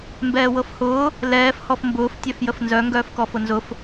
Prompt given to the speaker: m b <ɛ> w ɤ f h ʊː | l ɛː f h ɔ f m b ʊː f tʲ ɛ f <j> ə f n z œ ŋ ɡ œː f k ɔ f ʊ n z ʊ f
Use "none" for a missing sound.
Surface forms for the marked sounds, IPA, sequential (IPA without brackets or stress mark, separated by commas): ɛː, j